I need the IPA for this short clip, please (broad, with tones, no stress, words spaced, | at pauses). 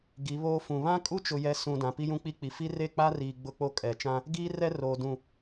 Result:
ɡi˨˦βoː˦ fũ˨ βã˦kʼu˦t͡ʃʊ˨jɛ˨ sũ˨ dã˨pi˦jũ˦ k͡pi˦k͡pi˨ fi˦re˦˨k͡pa˦riː˨ ɡ͡bʊ˦k͡po˦kʼɛ˨ t͡ʃã˦ | ɡiː˦ rɛ˦roː˨ dũ˨